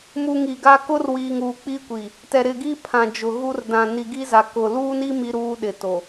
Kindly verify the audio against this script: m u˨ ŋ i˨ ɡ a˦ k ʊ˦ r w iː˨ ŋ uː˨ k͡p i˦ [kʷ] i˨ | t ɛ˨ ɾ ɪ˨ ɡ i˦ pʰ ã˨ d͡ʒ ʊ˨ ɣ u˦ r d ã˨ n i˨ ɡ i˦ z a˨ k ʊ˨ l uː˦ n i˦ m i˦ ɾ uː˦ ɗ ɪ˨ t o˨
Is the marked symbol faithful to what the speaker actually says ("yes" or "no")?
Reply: yes